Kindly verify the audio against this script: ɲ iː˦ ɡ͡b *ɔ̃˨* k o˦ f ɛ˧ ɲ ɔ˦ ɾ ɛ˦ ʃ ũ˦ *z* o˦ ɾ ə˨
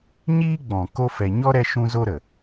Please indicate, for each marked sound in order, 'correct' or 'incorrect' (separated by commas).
correct, correct